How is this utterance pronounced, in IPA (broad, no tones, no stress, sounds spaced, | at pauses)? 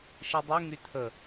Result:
ʃ i dˤ y ŋ y tʰ ə